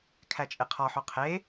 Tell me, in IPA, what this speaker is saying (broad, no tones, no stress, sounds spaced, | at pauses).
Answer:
kʰ æ t͡ʃʼ e qʰ ɒ ħ o qʰ e